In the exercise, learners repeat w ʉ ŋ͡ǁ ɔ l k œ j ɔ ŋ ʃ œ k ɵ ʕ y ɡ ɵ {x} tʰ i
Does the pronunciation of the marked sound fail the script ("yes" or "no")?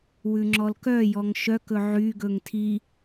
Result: yes